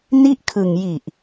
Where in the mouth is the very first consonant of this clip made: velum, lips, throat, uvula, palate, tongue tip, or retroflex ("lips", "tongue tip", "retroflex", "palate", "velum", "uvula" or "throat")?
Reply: tongue tip